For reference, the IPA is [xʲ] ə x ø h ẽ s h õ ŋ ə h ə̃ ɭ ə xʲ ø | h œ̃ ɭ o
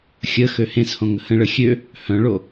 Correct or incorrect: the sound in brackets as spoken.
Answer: correct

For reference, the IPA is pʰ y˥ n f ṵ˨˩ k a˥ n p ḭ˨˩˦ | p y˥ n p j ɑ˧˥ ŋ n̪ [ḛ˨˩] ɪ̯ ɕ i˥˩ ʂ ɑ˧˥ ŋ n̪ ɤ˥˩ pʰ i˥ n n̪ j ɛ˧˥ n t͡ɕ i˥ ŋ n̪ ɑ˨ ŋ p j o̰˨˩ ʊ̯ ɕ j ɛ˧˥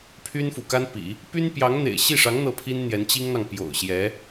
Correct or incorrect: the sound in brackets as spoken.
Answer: correct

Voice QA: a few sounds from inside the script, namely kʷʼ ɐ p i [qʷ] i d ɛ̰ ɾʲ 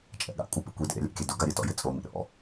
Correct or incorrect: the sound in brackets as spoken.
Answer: incorrect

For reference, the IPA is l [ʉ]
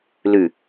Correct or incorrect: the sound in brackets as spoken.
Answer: correct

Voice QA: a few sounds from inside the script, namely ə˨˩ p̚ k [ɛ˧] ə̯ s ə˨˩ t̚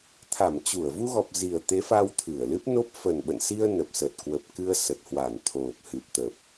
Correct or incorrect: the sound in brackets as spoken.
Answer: incorrect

